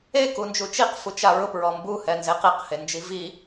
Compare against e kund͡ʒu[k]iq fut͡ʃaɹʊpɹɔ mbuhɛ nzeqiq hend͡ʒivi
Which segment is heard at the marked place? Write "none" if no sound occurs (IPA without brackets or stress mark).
t͡ʃ